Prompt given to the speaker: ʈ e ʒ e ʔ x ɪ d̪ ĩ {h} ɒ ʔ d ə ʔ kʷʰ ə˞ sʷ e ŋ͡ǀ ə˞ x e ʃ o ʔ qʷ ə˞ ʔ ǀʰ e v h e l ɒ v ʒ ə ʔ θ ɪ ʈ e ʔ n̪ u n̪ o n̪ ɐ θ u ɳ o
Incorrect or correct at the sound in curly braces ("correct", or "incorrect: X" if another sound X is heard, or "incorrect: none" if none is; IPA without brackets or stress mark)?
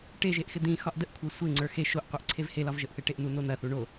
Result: incorrect: x